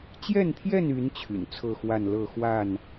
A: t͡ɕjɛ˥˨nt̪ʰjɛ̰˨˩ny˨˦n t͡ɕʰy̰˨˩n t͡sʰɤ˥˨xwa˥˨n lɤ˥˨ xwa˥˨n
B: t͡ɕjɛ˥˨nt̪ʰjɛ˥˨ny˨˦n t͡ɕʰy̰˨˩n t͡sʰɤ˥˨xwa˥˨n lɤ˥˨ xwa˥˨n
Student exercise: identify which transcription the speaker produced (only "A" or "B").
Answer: B